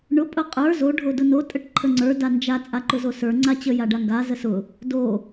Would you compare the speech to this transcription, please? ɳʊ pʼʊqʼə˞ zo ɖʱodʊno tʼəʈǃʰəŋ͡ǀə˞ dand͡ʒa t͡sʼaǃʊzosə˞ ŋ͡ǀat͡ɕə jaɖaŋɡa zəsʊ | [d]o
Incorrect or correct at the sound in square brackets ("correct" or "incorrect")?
correct